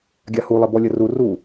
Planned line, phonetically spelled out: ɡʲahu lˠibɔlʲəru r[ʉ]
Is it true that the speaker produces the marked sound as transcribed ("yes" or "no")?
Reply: no